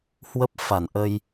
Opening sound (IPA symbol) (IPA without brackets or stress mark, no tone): h